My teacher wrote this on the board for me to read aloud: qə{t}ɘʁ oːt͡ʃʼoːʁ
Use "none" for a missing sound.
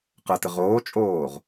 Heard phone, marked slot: t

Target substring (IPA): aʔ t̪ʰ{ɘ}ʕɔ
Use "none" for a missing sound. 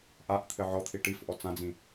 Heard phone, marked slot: ɘ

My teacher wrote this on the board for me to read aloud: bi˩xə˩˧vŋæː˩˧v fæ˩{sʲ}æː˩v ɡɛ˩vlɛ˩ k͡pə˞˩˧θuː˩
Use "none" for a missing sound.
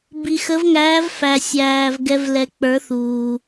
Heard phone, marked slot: sʲ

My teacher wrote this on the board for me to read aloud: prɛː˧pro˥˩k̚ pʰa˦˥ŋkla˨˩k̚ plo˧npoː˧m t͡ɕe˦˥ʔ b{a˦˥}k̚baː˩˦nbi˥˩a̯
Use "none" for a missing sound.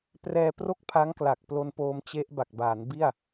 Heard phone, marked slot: a˨˩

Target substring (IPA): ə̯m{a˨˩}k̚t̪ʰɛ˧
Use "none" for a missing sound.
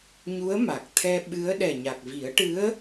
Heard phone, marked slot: a˨˩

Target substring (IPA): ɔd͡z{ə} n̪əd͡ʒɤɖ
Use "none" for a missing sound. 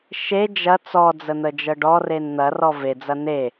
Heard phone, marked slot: ə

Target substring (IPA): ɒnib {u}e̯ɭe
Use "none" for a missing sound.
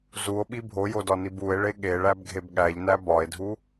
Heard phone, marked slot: u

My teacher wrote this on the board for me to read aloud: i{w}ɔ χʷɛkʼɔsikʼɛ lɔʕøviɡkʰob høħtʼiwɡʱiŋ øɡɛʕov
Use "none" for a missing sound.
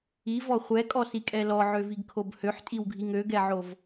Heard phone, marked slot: v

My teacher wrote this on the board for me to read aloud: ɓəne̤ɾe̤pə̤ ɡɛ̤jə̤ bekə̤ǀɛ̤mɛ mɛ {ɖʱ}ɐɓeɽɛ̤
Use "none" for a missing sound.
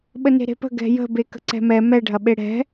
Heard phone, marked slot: ɖʱ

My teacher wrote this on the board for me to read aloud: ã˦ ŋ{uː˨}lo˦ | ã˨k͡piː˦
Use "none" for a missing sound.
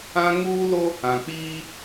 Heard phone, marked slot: uː˦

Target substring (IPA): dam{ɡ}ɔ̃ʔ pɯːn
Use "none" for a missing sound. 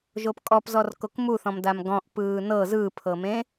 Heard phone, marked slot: ɡ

